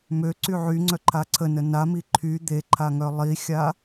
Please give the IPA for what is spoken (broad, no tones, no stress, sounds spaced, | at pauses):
m ø ǀ y ʕ y ŋ͡ǀ œ ǃʰ a ǀʰ ə n ə n a m i ǃʰ y d̪ e ǃʰ a ŋ œ lˠ i xʲ a